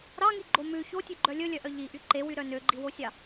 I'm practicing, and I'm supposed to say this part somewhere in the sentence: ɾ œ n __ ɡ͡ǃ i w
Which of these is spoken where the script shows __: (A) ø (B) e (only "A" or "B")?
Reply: A